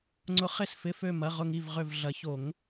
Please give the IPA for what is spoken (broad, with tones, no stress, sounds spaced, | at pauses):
ŋ͡ǀ ʊ˨˩˦ χ ɪ˧˩ s f ɪ˩˧˩ f ø˧˩ m ɐ˩˧˩ ʁ ʊ˧˩ ŋ i˧˩ v ʁ ø˧˩ v ɮ ɐ˨˩˦ ç o˨˩˦ ŋ